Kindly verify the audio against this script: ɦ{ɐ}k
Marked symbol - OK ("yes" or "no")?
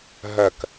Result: yes